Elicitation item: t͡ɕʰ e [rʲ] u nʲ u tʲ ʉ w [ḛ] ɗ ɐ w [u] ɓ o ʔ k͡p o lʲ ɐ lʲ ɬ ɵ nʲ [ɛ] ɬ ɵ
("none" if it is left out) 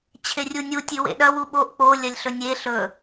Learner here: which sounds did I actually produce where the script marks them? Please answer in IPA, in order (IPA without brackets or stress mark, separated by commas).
rʲ, ḛ, u, e